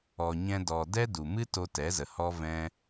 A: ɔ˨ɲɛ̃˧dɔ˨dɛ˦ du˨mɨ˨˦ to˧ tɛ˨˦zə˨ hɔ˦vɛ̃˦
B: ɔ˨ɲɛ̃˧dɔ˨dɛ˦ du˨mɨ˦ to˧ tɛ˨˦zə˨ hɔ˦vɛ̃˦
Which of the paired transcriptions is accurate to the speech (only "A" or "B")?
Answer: B